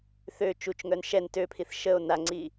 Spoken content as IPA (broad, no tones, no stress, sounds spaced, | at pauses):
θ ø t͡ʃ u t͡ʃ ŋ œ n ʃ ɛ n t ø pʰ i θ ʃ ə o̯ n a ŋ͡ǀ i